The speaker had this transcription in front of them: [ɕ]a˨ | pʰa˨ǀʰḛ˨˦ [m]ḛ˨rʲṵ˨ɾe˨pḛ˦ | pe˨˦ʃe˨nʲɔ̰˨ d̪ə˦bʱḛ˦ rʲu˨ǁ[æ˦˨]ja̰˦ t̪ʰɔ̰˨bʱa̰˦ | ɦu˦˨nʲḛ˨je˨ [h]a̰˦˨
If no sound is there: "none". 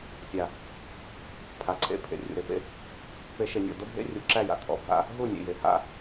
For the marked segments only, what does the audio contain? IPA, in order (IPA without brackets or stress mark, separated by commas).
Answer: sʲ, pʰ, æ˦˨, h